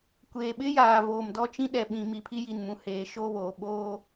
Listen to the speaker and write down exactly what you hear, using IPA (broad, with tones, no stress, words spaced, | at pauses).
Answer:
kʷeː˨ ɓɪ˦jaː˨ voː˨mdɔ˦t͡ʃĩ˦ ɗɛ˨ɓĩ˨ mi˨pʰi˦ ji˨nmũ˨heː˨ ʃoː˦βoː˨ ɓoː˦